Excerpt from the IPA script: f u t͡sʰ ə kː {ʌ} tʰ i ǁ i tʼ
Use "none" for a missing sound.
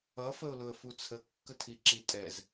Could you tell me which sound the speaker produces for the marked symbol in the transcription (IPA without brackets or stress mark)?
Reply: ə